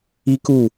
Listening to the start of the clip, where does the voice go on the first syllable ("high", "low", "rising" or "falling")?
high